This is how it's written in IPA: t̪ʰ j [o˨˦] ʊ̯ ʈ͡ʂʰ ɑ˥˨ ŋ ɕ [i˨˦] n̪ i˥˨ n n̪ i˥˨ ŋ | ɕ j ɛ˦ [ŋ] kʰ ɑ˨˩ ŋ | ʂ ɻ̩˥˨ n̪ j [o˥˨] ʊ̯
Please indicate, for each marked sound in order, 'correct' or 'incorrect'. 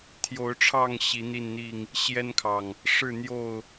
correct, correct, incorrect: n, correct

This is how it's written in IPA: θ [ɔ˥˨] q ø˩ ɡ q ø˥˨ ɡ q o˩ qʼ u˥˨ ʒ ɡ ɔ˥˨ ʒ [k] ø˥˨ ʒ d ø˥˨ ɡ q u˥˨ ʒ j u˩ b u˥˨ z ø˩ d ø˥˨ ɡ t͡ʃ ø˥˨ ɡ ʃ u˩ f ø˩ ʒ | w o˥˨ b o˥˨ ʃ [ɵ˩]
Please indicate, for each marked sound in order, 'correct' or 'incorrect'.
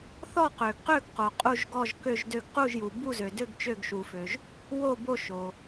correct, correct, incorrect: o˩

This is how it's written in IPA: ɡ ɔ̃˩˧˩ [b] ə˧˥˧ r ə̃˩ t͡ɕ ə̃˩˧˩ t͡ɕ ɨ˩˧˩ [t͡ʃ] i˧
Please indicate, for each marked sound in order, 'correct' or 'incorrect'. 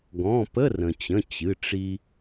incorrect: p, incorrect: ʈ͡ʂ

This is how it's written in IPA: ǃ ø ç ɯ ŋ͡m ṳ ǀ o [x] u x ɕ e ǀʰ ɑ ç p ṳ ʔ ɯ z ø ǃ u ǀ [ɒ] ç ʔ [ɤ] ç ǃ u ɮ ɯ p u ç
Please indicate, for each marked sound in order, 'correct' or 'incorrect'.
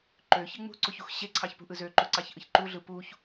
incorrect: ç, incorrect: ɑ, incorrect: ɯ

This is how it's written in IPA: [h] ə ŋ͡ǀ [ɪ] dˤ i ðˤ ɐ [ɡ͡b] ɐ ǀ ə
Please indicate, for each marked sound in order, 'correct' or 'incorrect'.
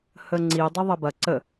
correct, incorrect: i, incorrect: b

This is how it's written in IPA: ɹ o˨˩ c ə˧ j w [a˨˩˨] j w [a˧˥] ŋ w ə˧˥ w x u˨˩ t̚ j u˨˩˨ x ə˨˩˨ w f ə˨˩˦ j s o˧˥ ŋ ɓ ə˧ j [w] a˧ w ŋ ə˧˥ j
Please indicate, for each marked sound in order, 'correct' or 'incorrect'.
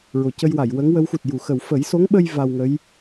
correct, incorrect: ə˧˥, incorrect: v

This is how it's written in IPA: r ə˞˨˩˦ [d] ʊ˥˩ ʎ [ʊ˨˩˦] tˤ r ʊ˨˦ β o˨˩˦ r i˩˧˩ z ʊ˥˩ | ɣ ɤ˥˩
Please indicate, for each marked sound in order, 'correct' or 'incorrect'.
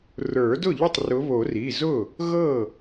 correct, incorrect: ʊ˥˩

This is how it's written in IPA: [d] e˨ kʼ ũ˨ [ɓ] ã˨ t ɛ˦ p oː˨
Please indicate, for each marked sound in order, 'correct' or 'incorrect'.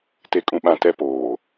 incorrect: t, correct

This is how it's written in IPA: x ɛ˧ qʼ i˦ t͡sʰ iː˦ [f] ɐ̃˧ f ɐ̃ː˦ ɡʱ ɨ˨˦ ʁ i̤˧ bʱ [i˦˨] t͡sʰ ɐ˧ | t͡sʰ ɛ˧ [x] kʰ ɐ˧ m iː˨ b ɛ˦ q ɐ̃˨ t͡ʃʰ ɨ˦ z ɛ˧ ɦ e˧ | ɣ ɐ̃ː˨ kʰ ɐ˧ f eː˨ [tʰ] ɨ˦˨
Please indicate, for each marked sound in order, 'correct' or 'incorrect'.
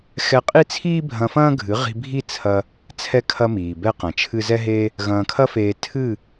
incorrect: bʱ, correct, incorrect: none, correct

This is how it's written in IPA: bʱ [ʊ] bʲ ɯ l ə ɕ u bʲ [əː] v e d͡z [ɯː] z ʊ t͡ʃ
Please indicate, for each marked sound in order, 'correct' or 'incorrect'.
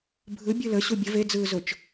incorrect: ɯ, incorrect: ə, correct

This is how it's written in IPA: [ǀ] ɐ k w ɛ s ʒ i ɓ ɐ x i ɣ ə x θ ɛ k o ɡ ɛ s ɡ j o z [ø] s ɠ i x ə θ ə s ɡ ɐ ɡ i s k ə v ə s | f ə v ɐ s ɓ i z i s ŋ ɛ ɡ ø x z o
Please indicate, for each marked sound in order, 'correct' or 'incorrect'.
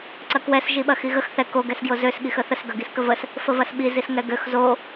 correct, correct

